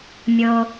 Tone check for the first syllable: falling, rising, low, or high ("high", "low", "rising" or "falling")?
low